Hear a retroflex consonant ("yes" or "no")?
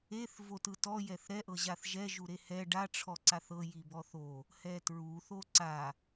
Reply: yes